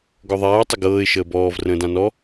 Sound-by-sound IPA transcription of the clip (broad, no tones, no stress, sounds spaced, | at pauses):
ɡ ɔ ðˤ aː ʊ̯ tˤ ə ɡ ɤː ɪ̯ ʃ əː b ɔː v r ə̃ː d ã n ɔ